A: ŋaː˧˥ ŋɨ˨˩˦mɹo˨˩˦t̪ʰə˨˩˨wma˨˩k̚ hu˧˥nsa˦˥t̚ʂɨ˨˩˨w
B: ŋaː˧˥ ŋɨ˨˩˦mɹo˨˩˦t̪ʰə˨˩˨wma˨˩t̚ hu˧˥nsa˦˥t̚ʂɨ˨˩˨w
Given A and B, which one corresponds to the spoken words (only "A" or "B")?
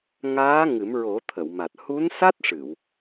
B